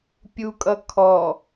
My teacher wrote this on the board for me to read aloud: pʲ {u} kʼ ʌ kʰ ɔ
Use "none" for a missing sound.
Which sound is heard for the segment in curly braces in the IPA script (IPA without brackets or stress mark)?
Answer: u